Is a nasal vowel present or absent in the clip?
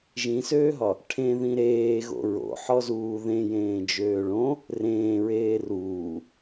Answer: present